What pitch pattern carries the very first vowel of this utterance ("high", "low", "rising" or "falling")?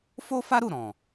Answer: high